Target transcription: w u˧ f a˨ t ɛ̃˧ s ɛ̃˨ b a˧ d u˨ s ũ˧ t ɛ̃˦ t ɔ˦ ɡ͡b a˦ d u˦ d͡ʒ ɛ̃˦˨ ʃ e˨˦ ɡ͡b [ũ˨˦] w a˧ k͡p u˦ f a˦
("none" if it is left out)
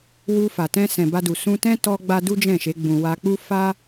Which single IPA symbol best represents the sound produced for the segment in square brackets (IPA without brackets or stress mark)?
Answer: ũ˧